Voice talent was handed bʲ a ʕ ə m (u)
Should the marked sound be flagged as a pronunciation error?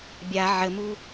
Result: no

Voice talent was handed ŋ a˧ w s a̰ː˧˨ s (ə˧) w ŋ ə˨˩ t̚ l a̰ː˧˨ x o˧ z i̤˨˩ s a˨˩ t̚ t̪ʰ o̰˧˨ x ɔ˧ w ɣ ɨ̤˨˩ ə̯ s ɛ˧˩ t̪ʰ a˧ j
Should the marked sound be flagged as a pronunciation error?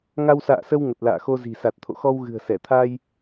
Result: no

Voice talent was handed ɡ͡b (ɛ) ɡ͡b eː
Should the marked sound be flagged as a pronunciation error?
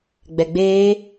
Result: no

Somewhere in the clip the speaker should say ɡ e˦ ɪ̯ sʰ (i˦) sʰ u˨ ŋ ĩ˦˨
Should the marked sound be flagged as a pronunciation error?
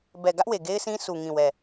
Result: yes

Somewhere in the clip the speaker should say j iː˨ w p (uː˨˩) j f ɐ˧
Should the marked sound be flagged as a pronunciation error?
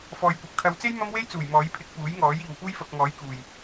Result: yes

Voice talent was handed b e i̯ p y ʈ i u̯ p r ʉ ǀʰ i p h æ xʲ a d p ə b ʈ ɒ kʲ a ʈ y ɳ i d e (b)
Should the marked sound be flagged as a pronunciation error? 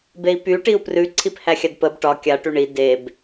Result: no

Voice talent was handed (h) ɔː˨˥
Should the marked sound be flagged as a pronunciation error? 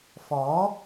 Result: yes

